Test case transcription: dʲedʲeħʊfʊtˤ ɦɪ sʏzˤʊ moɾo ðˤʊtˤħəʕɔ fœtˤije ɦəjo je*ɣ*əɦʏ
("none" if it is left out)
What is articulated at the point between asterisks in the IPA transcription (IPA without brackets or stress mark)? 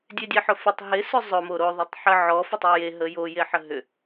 ħ